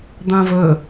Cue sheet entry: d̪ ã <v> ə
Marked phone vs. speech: correct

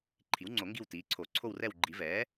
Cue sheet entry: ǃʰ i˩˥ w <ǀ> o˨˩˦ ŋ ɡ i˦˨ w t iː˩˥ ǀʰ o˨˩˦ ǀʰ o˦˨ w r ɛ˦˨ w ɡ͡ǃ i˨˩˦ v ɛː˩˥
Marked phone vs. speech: incorrect: ŋ͡ǀ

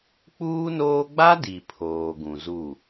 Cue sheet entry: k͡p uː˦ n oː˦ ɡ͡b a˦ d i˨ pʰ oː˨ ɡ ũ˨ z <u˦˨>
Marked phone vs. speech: correct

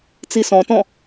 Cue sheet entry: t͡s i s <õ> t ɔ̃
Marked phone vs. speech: incorrect: ɔ̃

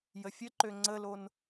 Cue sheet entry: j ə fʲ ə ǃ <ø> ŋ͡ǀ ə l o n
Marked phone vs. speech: correct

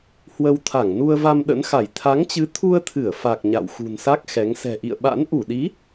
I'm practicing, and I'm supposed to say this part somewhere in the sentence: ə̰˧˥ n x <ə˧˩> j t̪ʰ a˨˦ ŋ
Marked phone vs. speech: incorrect: a˧˩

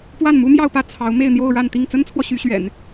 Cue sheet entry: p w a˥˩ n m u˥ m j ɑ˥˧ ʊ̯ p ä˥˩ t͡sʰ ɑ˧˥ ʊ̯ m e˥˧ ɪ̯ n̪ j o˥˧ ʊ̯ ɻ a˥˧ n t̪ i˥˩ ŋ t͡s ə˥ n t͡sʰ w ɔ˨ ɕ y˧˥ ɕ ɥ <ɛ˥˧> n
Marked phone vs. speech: incorrect: ɛ̰˨˩˦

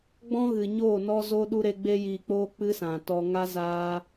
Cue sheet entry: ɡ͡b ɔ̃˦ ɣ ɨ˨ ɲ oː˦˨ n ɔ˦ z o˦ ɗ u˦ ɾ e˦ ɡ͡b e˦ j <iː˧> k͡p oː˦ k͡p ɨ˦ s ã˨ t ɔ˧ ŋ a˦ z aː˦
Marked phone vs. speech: correct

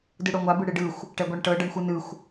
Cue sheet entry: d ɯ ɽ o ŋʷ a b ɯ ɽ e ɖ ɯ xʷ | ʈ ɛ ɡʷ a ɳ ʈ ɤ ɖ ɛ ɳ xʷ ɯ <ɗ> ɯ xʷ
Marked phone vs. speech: incorrect: n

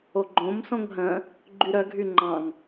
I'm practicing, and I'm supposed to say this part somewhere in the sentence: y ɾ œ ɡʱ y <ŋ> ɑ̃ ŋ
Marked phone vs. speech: incorrect: ŋ͡ǃ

